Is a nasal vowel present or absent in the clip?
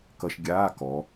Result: absent